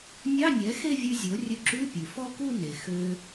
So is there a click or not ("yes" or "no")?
yes